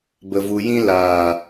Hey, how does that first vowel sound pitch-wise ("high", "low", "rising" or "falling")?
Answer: low